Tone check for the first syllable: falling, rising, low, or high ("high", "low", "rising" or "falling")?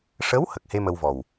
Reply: rising